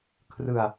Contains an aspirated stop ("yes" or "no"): yes